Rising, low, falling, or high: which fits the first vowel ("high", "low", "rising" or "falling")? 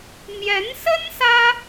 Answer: rising